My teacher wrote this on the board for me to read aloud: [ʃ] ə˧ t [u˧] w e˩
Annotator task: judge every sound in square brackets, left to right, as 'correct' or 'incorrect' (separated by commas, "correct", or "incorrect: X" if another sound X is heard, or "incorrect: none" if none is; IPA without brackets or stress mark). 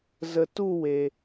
incorrect: z, incorrect: u˥˧